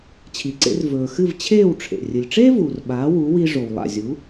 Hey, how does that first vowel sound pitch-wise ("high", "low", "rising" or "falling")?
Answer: low